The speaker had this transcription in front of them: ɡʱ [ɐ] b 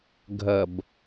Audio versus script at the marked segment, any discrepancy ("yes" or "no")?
no